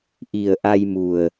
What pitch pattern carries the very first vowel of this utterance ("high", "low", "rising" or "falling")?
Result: low